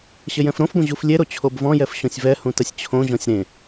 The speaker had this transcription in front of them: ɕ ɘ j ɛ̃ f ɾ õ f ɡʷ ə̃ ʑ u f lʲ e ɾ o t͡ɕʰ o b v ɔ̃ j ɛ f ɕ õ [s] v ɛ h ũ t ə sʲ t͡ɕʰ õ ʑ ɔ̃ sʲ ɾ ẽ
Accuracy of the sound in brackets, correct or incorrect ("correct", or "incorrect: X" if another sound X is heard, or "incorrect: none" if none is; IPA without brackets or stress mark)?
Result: incorrect: sʲ